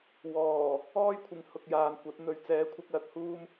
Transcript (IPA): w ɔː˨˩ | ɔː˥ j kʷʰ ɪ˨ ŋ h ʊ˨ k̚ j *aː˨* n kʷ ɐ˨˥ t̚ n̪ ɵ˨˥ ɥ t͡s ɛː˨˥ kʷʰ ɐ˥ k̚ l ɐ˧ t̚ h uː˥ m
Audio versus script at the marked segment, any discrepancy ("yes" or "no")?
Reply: no